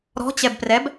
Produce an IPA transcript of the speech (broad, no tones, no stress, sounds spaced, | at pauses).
ɾ ɔ̤ t͡ɕ ɛ b p r ɛ b